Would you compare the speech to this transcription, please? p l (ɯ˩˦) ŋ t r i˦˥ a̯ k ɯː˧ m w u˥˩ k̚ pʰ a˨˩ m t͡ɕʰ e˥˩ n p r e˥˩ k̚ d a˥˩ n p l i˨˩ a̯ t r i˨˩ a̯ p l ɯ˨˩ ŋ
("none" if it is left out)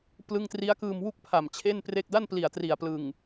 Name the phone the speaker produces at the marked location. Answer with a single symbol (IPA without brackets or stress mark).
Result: ɯ˥˩